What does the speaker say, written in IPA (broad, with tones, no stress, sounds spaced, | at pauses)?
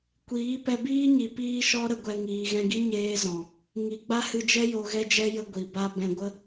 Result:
kʷ iː˨˦ p ɛ˧ b iː˦ ɲ i˨ p iː˦ ʃ ɔ˦ ɾ ə˧ ɡʷ ɛ˧ ŋ iː˨ ɣ ɛ̃˧ ɡ i˦ ɲ eː˦ z ɔ̃˨ | ŋ i˨ ɡ͡b a˦ h ɨ˧ d͡ʒ ɛ˦ j o˧ ɣ ɛ˦ d͡ʒ ɛ˦ j ə˧ ɡʷ i˨ b a˦ b ɛ̃˧ ɡʷ ə˦